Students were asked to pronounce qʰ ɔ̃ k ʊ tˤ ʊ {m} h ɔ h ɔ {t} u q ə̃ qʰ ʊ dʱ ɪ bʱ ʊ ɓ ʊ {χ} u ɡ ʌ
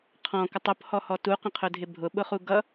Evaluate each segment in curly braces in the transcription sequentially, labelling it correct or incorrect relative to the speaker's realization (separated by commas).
incorrect, correct, correct